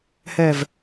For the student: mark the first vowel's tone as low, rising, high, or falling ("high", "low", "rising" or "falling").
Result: low